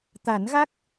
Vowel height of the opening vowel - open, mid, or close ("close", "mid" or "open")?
open